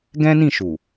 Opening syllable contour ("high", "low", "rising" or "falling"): high